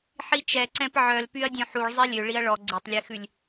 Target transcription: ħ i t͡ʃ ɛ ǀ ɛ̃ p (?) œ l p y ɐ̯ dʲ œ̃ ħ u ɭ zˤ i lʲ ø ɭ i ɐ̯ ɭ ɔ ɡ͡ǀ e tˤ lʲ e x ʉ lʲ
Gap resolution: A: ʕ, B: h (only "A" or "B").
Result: A